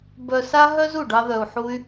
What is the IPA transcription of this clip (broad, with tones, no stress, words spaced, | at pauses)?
bœ˧sa˥ ɦœ˥zu˩ ɖɑ˥ðœ˧u̯ħu˥y̯